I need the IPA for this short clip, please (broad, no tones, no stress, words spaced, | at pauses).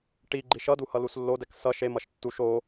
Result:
ʈiɡ͡ǃi ʃʌdu hʌluslːodɛk sʌ ʃemʌʃ tːuʃ o